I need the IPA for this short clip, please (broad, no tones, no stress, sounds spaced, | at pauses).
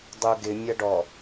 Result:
dˤ u ɡ ɪ mʲ ɐ ɖ ɔ